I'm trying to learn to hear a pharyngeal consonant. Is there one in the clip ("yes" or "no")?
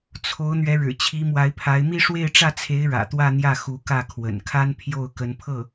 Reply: no